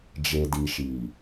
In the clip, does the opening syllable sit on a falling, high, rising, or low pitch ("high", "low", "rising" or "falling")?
low